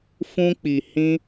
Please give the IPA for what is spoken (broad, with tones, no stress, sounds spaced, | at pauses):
f ũ˦ k͡p i˧ h ĩ˦